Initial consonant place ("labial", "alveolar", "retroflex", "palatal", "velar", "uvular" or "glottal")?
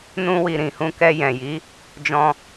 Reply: alveolar